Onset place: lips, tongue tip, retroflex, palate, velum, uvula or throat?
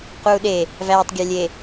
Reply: uvula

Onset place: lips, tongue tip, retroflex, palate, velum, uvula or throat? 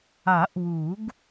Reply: throat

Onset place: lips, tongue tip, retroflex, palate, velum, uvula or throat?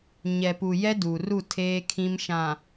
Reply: palate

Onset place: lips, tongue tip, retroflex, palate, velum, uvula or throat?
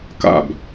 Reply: velum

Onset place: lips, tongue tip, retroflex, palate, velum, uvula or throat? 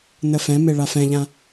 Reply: tongue tip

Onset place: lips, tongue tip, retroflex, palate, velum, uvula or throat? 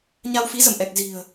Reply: palate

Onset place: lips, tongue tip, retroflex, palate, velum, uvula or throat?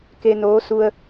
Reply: velum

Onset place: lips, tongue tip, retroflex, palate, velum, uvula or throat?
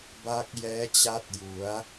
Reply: lips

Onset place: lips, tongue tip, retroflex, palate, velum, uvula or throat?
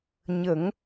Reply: palate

